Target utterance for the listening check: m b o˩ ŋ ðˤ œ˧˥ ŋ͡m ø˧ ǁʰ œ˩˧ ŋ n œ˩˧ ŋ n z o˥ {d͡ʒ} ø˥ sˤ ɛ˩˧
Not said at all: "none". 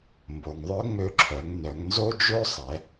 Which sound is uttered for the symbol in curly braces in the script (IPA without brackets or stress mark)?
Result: d͡ʒ